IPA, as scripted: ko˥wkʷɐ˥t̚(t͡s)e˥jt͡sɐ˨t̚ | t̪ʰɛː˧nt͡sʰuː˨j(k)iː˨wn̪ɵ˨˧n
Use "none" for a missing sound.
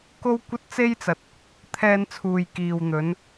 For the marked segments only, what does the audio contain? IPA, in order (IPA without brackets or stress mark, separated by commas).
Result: t͡s, k